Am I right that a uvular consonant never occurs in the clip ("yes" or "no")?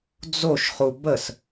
no